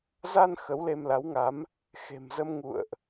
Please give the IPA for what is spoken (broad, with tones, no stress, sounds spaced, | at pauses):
z a˧ n x ə˨˦ w l e˧ m l a˨˦ w ŋ a˨˦ m | x e̤˨˩ m z ə˧ m ŋ ṵ˧˨ ə̯ ʔ